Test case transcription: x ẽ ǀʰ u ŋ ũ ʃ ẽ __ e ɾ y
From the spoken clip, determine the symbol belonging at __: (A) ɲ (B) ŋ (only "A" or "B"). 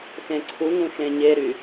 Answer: A